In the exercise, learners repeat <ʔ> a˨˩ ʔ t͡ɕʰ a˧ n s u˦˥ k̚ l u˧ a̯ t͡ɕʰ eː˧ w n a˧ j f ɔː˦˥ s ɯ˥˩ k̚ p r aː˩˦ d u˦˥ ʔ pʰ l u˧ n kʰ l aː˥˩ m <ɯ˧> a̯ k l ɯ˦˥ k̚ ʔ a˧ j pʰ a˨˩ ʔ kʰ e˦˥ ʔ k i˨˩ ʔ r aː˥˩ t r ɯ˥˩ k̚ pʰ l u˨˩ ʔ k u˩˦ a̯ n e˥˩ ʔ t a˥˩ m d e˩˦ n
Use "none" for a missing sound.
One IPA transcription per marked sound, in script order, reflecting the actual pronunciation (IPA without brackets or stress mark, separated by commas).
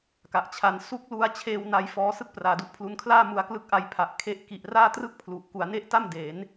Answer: k, u˧